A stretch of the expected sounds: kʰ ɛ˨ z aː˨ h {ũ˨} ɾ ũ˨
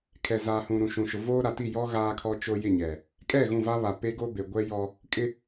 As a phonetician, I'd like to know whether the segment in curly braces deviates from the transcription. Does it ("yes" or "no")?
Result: no